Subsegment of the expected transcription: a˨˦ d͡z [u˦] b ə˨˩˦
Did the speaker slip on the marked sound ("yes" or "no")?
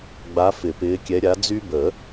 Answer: yes